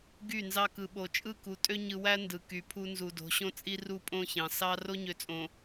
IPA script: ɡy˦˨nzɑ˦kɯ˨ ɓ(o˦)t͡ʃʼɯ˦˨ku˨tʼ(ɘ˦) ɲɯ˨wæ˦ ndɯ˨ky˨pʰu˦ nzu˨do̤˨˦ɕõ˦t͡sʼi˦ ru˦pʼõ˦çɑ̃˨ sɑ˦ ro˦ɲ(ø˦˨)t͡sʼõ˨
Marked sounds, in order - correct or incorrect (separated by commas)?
incorrect, incorrect, incorrect